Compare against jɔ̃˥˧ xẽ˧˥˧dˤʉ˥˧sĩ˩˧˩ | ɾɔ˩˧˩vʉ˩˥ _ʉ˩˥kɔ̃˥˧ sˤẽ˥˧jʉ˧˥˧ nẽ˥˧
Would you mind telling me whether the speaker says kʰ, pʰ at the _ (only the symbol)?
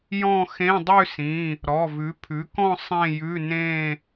pʰ